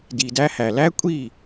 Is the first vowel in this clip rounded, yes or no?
no